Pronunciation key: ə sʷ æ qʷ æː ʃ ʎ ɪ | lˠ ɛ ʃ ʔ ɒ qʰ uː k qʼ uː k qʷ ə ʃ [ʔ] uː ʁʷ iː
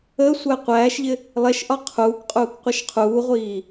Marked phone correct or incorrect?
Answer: incorrect